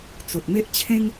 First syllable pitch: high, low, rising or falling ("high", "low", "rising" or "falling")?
low